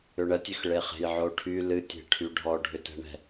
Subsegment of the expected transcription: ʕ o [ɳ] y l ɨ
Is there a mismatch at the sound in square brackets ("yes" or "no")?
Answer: yes